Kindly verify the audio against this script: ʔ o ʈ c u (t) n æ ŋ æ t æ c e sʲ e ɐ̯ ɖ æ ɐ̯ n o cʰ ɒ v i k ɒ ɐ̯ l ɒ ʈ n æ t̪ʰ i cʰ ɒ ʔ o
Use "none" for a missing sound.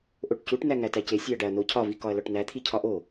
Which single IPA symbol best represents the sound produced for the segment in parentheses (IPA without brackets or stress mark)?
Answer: ʈ